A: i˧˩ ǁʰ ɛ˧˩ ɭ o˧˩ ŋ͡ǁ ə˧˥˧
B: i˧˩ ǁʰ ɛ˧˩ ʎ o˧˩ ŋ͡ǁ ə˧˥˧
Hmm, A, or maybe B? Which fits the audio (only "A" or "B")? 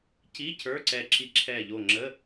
B